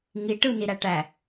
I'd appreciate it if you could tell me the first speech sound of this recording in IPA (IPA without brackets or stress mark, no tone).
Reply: ŋ